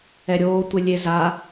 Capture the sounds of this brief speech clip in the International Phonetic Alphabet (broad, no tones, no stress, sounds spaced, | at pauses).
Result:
ɛ ɾʲ oː tʷ e lʲ e z a